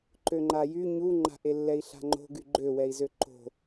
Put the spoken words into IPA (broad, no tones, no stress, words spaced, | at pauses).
ǃøŋ͡ǃajy ɲuŋ͡ǃa̤ʔelːɛi̯ ɬa̤ŋ͡ǃo̤ɡy ɡ͡ǃøwɛi̯zø ǃo̤